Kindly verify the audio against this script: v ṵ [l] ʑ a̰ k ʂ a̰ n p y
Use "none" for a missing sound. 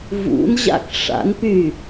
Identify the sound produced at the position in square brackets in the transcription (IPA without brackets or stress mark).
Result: n